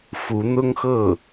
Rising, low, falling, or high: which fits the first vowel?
rising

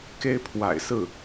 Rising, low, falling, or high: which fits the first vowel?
high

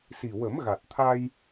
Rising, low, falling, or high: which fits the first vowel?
low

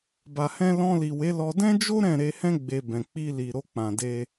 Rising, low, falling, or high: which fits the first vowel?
low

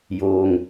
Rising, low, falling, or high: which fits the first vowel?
low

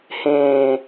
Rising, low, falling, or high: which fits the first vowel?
low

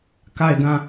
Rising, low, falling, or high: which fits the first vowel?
falling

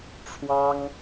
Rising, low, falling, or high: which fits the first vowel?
high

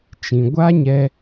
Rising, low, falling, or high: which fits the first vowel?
low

